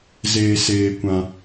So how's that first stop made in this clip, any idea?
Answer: plain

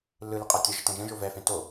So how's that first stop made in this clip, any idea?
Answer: ejective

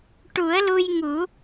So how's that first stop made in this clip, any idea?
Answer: plain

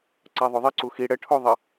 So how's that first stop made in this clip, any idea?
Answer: click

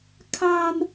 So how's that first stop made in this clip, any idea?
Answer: aspirated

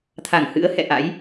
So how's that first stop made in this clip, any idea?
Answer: aspirated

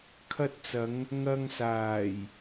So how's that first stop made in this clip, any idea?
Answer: aspirated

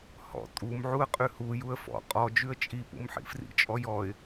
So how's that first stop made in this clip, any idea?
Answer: ejective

